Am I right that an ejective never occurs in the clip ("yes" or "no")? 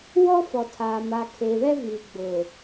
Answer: yes